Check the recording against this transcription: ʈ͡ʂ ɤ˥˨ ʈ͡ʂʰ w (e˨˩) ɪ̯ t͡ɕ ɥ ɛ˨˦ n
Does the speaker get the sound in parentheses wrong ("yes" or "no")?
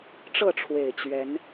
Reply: no